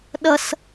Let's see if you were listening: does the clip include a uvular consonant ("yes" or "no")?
no